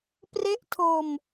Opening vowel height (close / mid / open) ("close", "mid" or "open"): mid